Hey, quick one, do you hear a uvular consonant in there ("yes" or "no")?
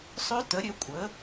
no